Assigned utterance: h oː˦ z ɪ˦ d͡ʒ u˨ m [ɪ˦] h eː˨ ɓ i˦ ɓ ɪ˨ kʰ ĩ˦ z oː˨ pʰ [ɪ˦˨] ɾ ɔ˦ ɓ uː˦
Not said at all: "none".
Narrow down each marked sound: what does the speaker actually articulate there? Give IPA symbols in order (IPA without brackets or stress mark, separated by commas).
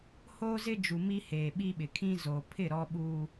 i˦, ɪ˦˨